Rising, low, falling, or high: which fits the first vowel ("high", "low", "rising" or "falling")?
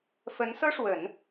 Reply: rising